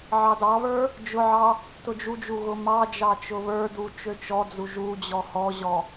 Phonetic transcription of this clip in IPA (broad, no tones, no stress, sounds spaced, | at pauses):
ʕ ɑ d ɑ β ə˞ | d͡ʒ ʊ ʕ ɑ | t ʊ d͡ʒ u d͡ʒ u ɣ ʊ m ɑ d͡ʒ ɑ t͡ʃ ʊ β ə˞ d u t͡ʃ ø t͡ʃ ɔ d͡z u ʒ u d͡ʑ ɔ h ɔ ʑ ɔ